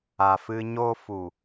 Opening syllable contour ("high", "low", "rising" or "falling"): low